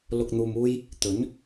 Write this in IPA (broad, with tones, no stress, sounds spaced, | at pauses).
l ʊ˨ k̚ n̪ uː˨ m uː˧ j | t̪ ɵ˨˥ n